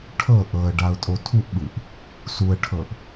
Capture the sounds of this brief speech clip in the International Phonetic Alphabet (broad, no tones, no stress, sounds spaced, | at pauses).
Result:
ʈʰ ɤ ʔ ɤ ə̯ ɖ a ʊ̯ tʼ o tʰ u ʔ ɓ ɯ ʔ | s u ə̯ ʈʰ ɤ ʔ